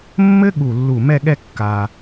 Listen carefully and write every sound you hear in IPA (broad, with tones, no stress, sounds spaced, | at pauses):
mː ɘ˥ ɠ u˧˩ lː u˧˩ m ɛ˥˧ ɠ ɛ˥˧ kː a˧